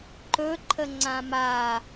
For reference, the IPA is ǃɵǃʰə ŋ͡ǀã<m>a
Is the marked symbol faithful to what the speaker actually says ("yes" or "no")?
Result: yes